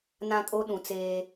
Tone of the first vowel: high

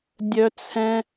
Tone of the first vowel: high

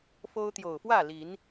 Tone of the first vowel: high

